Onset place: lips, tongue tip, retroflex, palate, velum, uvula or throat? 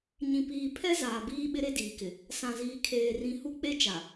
palate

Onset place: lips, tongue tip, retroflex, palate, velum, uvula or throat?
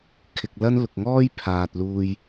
velum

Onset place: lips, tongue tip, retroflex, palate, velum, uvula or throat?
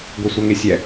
velum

